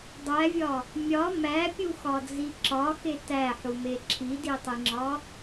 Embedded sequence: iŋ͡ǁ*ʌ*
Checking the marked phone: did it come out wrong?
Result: yes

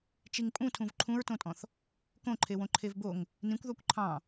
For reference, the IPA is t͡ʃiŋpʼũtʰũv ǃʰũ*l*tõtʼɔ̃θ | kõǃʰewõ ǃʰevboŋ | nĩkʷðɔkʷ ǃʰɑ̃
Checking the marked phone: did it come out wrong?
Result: yes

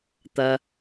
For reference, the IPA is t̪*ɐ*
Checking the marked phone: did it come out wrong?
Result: no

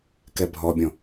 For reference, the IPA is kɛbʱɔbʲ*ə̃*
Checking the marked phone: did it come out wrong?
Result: yes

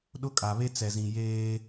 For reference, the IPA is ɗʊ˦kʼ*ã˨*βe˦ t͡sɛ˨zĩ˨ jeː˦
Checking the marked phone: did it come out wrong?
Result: yes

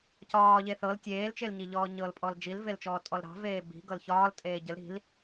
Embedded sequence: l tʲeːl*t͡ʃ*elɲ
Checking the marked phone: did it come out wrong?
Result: no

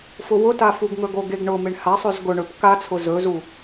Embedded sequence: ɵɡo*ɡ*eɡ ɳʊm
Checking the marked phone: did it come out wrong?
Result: no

